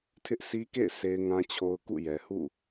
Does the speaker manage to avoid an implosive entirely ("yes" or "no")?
yes